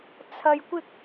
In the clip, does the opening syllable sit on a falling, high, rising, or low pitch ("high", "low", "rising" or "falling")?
low